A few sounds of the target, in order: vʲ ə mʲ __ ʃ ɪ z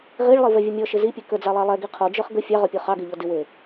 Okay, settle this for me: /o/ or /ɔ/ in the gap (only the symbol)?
ɔ